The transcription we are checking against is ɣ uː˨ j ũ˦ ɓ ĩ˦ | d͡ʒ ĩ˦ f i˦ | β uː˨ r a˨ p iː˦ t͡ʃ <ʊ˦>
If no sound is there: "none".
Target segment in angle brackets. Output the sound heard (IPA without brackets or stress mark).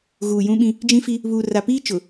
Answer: ʊ˨